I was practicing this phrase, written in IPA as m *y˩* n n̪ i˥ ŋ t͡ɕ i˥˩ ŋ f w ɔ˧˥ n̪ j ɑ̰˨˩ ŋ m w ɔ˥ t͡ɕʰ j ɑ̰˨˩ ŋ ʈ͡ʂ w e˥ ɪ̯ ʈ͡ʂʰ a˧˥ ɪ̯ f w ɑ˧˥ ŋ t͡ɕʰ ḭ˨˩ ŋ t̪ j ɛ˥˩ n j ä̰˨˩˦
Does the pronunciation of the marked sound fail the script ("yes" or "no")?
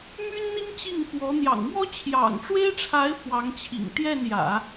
yes